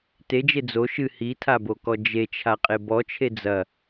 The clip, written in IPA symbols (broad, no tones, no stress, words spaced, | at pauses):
ted͡ʒe d͡zo ʃɨ hitʰabokɔ d͡ʒet͡ʃʰaqʼe bɔt͡ʃʰe d͡zɐ